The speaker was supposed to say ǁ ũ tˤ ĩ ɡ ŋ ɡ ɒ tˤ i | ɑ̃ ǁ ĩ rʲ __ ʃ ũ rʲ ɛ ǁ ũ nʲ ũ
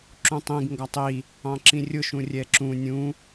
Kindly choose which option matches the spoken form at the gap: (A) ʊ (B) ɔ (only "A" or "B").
A